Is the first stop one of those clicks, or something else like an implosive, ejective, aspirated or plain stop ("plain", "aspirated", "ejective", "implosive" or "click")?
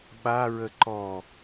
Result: implosive